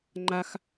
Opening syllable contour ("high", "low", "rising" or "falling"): high